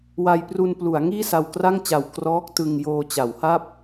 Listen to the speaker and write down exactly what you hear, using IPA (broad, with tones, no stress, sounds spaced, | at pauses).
w a˧ j p r u˧ n p l u˩˦ a̯ ŋ iː˥˩ s a˧ w k r a˥˩ ŋ t͡ɕ a˨˩ w k r ɔː˦˥ k̚ t ɯ˧ ŋ j oː˧ t͡ɕ a˩˦ w h a˥˩ p̚